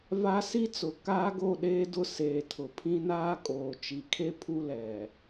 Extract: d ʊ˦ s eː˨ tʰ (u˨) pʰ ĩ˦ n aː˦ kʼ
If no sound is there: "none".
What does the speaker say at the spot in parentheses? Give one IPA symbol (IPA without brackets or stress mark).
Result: ʊ˨